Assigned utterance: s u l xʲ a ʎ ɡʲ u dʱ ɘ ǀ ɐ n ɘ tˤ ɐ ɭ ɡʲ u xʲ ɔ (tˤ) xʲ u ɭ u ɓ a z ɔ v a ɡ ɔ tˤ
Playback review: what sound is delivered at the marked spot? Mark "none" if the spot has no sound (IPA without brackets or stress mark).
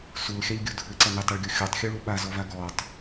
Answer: tˤ